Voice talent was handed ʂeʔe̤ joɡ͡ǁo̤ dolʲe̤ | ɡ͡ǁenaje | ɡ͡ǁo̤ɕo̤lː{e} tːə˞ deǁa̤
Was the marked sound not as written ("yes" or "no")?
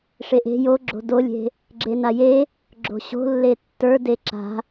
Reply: no